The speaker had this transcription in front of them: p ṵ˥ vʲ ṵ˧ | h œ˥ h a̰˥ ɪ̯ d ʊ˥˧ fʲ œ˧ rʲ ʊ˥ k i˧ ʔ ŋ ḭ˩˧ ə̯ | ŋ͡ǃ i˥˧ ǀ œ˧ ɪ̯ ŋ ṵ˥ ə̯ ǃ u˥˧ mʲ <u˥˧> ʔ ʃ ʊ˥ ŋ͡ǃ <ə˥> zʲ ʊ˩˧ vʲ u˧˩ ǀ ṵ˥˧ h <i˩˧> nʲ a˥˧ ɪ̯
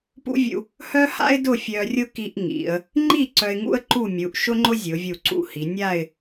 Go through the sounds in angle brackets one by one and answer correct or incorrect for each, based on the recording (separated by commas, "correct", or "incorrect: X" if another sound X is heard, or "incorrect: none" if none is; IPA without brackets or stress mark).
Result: incorrect: u˩˧, incorrect: ʊ˥, correct